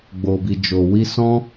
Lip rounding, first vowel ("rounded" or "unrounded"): rounded